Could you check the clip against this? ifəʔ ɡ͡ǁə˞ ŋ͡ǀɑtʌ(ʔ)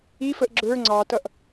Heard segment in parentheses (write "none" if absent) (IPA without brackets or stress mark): ʔ